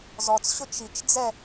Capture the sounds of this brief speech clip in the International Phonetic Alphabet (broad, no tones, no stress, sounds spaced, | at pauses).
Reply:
z ɔ t͡s ɕ ʊ t͡ʃ i t͡ʃ d͡z ɛ